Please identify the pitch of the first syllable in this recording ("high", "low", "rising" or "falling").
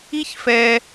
high